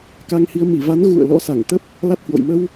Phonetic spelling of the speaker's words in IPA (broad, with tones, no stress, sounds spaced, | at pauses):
k a˧ ŋ h i˧ ə̯ m i˧˩ v a˨˦ n ɣ ṵ˧˨ ə̯ l ɔ̰˧˥ s a˧˩ ŋ t̪ ə˦˥ p̚ | l a˦˥ t̚ h w o̰˧˨ j m ə˧ w